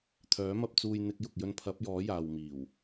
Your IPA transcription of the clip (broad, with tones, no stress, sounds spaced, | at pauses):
t̪ʰ œː˨˥ m ɐ˧ p̚ t͡s uː˧ j n̪ ɪ˧ k̚ j ʊ˨ k̚ j ɵ˧ n pʰ ɐ˨˥ p̚ j ɔː˨˥ j aː˨ w m iː˨˩ w